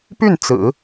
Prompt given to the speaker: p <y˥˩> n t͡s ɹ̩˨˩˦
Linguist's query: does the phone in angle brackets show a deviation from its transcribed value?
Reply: no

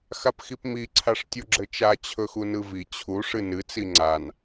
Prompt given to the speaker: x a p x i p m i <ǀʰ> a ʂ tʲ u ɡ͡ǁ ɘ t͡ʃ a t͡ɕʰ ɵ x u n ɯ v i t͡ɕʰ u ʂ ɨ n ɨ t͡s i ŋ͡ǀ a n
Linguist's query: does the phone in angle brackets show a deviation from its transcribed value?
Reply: no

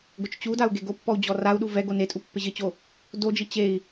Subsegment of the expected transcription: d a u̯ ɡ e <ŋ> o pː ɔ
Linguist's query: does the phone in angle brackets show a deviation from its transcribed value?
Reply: yes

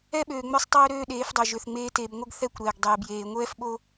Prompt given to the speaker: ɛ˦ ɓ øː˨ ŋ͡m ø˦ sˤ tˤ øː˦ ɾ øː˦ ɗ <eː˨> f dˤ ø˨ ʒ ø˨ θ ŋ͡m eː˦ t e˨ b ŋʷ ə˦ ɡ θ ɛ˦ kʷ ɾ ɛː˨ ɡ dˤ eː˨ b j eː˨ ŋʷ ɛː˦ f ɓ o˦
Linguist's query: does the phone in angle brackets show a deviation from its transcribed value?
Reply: yes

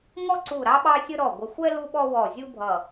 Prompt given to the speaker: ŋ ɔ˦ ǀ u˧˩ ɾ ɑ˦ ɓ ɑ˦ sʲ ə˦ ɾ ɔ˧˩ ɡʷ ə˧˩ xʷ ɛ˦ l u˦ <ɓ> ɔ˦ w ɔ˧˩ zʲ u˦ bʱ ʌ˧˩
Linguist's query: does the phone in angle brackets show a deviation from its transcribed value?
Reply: no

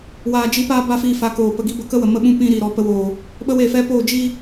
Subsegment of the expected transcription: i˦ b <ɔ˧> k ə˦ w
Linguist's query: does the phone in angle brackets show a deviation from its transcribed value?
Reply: yes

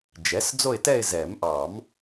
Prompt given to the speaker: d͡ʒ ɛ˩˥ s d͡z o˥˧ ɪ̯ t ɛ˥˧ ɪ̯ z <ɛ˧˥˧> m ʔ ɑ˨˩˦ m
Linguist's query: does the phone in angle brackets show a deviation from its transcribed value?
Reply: yes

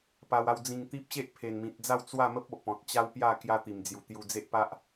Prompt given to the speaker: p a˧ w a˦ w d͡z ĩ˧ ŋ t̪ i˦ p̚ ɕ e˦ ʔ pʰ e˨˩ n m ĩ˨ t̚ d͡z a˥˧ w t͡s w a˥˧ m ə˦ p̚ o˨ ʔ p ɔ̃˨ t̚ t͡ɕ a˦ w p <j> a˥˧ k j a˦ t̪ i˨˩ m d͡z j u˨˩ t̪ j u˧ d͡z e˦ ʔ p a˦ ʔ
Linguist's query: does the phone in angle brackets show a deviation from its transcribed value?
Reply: no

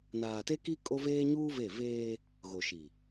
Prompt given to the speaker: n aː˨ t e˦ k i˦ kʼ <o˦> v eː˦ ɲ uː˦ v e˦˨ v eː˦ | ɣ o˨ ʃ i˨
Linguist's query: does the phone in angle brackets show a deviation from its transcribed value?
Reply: no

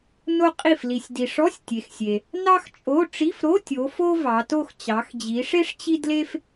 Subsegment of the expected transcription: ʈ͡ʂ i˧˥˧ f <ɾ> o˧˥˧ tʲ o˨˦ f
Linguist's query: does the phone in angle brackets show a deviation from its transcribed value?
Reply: no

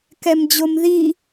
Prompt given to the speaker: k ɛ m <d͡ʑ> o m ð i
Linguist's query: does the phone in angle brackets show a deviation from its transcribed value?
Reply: no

